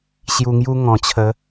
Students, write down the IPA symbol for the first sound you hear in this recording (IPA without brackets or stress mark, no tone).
ɕ